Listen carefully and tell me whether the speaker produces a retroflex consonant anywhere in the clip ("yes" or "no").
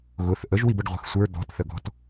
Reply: yes